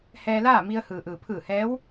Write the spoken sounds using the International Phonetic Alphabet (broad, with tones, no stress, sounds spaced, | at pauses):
h ɛː˧ l aː˥˨ m i˧ ə̯ h ɯː˩ ʔ ɯː˩ pʰ ɯː˧˩ h ɛː˧˥ w